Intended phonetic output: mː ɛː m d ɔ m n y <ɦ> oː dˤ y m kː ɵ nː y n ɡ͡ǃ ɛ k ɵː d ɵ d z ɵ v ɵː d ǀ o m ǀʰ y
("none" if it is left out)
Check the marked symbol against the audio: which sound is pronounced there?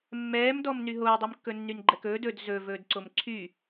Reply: ɦ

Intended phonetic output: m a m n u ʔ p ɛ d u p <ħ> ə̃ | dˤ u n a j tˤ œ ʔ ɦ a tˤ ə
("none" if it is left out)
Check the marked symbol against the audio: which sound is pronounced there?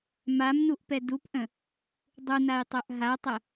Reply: ʔ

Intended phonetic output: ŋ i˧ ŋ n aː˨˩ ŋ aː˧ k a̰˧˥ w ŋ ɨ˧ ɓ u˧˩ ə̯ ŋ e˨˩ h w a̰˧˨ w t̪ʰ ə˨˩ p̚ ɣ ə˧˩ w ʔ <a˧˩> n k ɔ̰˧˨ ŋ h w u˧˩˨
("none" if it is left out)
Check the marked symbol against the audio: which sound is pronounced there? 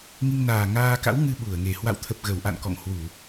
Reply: a̰˧˨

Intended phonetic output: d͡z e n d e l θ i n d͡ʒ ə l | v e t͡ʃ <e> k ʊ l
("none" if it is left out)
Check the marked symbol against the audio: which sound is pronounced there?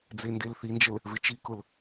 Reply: i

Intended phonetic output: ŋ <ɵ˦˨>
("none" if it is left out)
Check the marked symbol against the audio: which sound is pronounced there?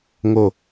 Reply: o˦˨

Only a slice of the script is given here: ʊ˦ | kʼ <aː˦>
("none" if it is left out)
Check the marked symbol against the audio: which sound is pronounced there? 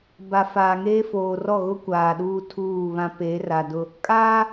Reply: aː˦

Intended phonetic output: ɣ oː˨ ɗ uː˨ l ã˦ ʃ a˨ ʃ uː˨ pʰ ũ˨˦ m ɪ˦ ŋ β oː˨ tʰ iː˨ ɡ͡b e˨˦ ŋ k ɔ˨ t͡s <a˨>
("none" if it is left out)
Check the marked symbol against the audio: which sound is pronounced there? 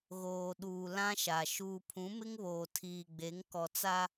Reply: a˦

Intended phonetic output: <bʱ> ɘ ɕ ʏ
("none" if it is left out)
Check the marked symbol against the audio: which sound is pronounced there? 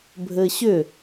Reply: bʱ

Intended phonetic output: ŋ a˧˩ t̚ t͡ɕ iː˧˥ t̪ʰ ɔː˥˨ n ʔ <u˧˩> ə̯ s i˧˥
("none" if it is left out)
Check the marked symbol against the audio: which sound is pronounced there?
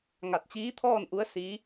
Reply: u˧˥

